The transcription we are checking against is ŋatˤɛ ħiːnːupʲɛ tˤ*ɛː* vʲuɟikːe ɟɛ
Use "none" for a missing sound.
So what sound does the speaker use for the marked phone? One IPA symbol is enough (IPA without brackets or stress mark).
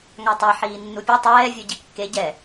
ɛː